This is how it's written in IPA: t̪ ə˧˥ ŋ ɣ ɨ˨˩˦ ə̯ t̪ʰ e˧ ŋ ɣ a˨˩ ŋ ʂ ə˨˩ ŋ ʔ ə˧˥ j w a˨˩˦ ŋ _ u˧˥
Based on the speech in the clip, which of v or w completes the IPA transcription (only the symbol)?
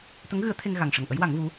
v